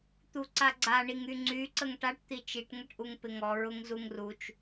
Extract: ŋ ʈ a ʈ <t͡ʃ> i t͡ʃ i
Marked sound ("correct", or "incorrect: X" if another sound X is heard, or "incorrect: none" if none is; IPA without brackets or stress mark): incorrect: t̪